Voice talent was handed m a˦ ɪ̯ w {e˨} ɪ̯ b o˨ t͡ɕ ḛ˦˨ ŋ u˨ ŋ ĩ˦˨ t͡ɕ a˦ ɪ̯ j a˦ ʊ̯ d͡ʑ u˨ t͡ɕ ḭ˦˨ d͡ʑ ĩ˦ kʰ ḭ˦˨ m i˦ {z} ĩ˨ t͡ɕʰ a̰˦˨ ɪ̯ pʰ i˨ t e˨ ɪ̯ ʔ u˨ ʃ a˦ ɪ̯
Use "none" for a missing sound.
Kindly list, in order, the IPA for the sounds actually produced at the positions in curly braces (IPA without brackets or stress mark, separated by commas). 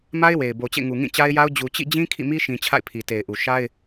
e˨, ʃ